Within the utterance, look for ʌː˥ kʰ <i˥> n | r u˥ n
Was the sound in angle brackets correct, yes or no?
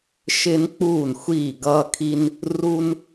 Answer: yes